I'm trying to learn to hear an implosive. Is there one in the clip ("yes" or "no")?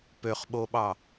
yes